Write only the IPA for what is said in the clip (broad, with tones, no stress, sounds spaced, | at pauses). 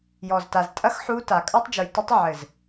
j ɔ˨ z t a˨ z tʼ ɐ˦ x ħ u˦ t a˨ kʼ a˦ tˤ d͡ʒ u˨ j t ɘ˦ tˤ ʕ ɘ˨ z